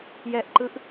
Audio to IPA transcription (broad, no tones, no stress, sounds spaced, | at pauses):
j ɛ ʔ ǃ ɯ ʔ